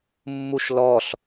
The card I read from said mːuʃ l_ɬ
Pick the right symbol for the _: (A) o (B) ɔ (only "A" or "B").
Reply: B